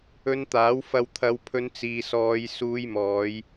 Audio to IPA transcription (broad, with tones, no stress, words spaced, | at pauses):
ɵ˧nt̪aː˨˥wfɐ˧w t̪ʰɐ˨˧wpʰɵ˧n t͡siː˨sɔː˨˧jsuː˧j mɔː˨˧j